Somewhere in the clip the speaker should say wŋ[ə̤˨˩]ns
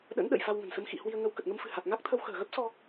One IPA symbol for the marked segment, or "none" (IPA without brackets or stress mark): ə̤˨˩